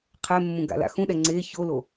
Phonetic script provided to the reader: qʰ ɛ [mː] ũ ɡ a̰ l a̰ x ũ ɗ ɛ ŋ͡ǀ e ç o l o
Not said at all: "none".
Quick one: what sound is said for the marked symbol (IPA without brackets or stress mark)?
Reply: mː